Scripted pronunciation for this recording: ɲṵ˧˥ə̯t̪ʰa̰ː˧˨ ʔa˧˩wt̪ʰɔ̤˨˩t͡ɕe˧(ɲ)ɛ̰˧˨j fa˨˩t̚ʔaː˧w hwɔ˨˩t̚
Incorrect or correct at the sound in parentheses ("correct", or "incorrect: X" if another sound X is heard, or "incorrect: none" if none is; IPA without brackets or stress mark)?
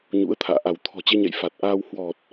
correct